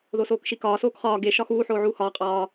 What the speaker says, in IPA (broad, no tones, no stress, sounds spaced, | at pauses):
ð o s oː k ʃ i k ɒː s oː k χ ɒː ɡ e ʃ ɒ x uː ħ oː ʕ uː h ɒː qʼ ɒː